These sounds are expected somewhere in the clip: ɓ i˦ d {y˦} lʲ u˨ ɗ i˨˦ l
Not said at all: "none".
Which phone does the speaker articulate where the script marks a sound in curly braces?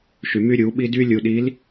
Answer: y˦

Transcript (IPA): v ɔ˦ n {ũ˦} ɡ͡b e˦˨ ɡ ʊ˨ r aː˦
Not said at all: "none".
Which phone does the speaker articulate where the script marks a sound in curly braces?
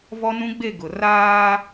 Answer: ũ˦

